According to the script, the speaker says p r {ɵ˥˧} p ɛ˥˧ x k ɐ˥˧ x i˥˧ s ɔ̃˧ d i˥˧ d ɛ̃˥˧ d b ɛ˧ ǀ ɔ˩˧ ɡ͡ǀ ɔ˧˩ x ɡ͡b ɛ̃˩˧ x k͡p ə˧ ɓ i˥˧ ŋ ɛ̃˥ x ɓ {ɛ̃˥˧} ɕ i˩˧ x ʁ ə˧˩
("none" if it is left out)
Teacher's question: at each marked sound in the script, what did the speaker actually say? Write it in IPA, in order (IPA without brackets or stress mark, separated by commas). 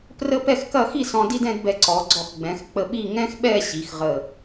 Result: ə˥˧, ɛ˥˧